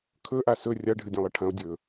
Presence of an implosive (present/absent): absent